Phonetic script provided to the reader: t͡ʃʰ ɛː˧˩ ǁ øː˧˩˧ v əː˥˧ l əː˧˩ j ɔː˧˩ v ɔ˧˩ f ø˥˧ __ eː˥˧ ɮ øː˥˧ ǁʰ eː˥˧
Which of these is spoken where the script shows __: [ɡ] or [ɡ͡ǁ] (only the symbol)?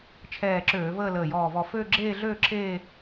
ɡ͡ǁ